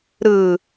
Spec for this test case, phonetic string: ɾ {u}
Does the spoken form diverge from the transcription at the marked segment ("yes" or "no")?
yes